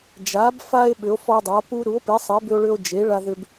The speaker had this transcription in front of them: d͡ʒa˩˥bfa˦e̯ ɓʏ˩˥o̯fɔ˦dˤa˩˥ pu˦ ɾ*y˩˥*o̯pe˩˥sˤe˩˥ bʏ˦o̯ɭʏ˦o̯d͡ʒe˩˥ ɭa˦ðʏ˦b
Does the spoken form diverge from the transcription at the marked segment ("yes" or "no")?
yes